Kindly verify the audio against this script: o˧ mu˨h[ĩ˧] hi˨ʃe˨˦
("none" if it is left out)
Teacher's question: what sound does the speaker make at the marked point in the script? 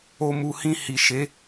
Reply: ĩ˧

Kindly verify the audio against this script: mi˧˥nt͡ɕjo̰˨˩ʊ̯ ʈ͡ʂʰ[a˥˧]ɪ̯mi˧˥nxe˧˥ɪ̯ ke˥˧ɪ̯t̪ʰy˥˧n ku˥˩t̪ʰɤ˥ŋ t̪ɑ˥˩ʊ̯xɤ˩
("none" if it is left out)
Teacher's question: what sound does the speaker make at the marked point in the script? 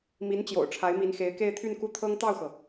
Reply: a˧˥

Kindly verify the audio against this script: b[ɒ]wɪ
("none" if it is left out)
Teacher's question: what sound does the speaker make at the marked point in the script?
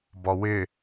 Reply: ɒ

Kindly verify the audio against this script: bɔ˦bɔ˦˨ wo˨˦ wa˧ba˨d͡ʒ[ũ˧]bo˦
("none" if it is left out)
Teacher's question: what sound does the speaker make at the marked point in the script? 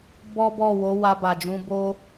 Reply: ũ˧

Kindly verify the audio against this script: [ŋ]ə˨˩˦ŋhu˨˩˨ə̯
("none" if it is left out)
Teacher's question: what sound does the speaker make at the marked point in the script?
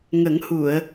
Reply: ŋ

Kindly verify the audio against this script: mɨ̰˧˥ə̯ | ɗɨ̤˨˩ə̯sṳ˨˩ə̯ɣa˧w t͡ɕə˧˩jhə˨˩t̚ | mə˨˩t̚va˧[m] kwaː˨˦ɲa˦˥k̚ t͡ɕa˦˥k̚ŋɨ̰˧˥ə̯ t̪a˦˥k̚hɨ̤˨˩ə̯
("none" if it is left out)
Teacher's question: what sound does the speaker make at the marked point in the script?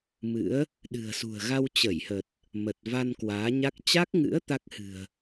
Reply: n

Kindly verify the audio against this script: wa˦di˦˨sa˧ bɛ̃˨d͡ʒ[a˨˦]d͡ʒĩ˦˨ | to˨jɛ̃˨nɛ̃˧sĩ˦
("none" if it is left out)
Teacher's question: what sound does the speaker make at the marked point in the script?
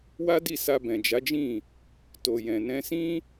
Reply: a˨˦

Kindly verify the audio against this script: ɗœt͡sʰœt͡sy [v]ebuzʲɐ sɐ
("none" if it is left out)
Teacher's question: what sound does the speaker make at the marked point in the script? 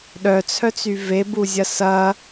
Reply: v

